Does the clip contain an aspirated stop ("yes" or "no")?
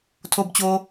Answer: yes